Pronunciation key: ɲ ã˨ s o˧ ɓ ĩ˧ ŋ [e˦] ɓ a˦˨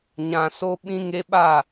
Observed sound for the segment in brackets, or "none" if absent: e˧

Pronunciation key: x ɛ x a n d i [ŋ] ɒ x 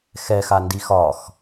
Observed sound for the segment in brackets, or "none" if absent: x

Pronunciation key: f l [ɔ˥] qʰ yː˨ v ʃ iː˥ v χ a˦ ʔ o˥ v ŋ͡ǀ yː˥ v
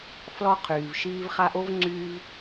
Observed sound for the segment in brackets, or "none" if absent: ɔ˥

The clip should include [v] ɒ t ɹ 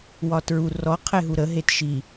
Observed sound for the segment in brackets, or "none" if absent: w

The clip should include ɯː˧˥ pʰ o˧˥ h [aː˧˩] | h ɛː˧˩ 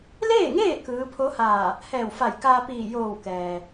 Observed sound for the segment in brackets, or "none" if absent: aː˧˩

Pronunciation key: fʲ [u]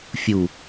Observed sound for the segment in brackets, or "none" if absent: u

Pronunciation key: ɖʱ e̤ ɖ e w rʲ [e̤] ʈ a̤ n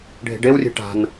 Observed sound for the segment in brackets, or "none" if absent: e̤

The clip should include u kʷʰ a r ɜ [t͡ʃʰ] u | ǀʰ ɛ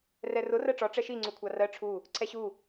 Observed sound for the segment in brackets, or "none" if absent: ʈ͡ʂʰ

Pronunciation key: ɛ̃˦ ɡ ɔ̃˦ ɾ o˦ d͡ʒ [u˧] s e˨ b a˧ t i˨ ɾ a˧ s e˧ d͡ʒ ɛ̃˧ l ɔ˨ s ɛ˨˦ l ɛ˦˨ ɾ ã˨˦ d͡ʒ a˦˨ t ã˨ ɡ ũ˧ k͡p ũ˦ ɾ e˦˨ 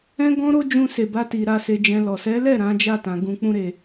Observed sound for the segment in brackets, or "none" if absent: ũ˧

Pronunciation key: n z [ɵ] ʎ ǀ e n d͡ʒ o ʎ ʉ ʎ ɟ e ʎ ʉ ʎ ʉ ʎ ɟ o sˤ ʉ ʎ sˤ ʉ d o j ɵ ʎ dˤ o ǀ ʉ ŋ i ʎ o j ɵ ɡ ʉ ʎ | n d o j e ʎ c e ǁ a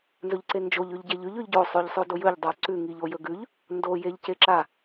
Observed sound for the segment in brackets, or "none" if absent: ɵ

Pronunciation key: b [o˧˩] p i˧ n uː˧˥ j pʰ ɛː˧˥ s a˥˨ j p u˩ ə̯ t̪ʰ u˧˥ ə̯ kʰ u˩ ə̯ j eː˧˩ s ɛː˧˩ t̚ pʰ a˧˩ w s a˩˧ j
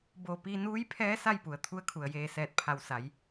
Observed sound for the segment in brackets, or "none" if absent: o˧˩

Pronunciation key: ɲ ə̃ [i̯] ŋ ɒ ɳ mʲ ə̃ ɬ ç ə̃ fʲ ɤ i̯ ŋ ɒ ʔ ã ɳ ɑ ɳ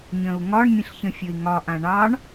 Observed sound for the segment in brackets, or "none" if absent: u̯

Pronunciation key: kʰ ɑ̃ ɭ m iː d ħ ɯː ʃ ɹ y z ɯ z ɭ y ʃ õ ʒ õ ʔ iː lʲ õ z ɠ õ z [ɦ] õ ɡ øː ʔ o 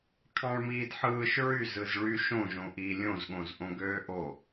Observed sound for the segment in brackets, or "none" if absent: ʔ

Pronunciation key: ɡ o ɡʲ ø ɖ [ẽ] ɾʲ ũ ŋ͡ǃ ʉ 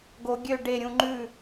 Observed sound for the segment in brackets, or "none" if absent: e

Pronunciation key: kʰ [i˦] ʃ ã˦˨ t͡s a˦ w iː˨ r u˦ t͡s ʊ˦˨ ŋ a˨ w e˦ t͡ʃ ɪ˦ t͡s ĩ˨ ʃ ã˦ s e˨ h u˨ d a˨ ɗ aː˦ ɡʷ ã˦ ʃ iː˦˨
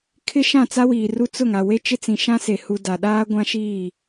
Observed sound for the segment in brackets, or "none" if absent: ɪ˦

